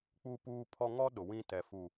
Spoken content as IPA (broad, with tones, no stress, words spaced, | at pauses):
k͡pu˦puː˦pʰɔ˦ ŋɔ˦ ɗʊ˨wĩ˦ tɛ˨fu˨